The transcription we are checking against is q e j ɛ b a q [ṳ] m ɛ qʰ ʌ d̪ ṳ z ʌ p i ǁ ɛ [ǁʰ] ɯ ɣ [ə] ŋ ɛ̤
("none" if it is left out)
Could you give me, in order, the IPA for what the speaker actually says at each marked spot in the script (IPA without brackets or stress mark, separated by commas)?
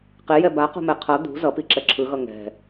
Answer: ṳ, ǁʰ, ʌ